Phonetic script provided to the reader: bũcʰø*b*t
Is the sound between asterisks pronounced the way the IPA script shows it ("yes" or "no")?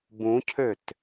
no